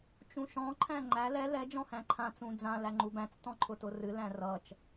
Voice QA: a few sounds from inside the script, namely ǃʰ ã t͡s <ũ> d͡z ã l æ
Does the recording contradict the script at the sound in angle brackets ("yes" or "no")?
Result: no